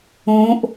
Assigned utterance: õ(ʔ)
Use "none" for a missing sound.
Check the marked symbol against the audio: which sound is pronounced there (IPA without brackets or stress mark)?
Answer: ʔ